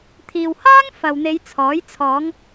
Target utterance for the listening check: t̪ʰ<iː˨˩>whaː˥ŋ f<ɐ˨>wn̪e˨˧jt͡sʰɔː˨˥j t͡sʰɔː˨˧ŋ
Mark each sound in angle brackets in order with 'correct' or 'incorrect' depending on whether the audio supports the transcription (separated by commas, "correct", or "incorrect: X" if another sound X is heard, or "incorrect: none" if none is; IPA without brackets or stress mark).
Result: incorrect: iː˨, correct